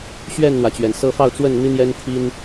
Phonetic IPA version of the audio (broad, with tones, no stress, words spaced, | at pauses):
ɕɥɛ˥˨nn̪wä˩t͡ɕɥɛ˩n sɤ˦ fɑ˥˨ʊ̯t͡swə˥˨n n̪i˦n̪jɛ˦nt̪ʰi˦n